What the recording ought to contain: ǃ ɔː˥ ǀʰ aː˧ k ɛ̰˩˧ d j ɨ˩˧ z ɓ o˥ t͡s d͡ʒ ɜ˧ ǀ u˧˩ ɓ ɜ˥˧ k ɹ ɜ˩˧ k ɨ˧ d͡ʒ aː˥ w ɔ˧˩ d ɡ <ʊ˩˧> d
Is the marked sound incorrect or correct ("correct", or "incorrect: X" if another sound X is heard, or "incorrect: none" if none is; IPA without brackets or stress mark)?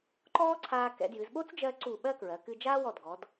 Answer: incorrect: ɔ˩˧